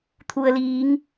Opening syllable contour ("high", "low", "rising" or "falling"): low